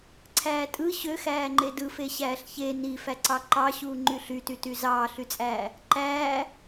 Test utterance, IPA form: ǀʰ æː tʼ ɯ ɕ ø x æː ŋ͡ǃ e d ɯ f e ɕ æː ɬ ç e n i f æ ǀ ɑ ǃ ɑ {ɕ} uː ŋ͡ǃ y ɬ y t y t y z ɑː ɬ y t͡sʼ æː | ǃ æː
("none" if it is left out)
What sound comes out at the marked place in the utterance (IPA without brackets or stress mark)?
ɕ